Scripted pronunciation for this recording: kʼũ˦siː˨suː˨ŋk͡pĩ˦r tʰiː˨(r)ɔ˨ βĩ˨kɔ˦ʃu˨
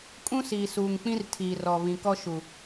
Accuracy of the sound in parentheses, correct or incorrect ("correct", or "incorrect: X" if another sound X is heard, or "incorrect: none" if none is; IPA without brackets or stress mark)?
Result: correct